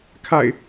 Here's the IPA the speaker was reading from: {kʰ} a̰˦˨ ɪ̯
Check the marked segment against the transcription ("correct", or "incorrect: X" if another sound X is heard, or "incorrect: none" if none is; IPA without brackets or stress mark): correct